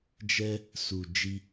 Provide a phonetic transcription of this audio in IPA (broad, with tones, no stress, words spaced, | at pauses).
d͡ʒɛ˦ | su˨ d͡ʒi˧